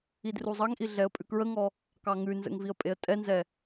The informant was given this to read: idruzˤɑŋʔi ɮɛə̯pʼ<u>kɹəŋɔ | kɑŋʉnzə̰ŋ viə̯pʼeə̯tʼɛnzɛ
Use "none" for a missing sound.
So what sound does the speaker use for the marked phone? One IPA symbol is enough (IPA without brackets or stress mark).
ʉ